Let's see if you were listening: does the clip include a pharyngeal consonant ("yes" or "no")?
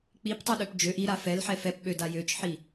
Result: yes